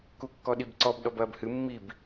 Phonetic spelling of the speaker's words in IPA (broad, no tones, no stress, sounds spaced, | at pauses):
k u kː ɔ ɗ i b ǀ ɔ b ɗ ɔ b ɐː b h ɨ mː i b